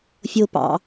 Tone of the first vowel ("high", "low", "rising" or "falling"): low